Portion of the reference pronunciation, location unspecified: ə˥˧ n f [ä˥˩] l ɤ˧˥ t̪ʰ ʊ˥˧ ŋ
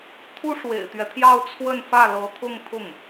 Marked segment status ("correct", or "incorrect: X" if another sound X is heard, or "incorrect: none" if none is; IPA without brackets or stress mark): correct